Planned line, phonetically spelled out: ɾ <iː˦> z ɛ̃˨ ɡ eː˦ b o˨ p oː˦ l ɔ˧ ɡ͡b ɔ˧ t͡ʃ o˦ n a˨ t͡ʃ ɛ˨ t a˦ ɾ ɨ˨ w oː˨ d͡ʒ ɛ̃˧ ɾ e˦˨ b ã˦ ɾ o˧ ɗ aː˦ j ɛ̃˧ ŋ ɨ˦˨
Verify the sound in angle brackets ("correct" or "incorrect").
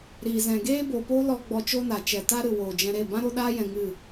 incorrect